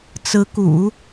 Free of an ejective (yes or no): yes